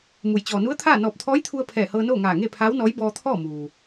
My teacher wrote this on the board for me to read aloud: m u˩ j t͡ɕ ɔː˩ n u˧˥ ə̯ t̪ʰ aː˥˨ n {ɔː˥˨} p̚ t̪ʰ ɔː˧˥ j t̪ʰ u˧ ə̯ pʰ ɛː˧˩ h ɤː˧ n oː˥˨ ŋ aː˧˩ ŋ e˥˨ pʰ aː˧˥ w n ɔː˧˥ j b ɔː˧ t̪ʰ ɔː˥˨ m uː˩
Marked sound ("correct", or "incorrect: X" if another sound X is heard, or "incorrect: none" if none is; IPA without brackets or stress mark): incorrect: ɔː˧˩